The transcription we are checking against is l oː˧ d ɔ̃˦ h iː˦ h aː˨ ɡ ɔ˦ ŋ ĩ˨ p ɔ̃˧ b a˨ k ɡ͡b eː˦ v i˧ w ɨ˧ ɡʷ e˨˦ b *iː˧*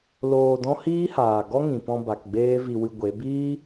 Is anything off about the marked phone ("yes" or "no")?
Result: yes